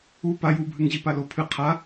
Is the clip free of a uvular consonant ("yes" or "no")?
no